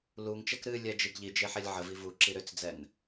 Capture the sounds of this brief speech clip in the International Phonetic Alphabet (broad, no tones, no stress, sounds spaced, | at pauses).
l u ŋ t͡ʃ ɛ k ɾ ɨ lʲ ɛ d͡ʒ i ɡ ʎ i d͡ʒ e ħ ɛ lʲ ʕ ə v i v u ǁ i ɾ ʏ t͡s d͡z ɛ n